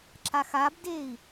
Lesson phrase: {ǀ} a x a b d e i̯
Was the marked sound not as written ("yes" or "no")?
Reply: yes